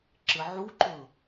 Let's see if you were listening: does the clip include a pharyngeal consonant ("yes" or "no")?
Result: yes